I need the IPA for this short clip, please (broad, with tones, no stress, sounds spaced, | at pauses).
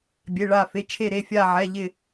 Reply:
bʲ e˩˧˩ ɭ a˧˩ f e˩˧˩ t͡ʃʰ e˧˩ ɾ e˩˧˩ fʲ a˧˩ ʕ ɛ˩˧˩ ʎ ɪ˧˩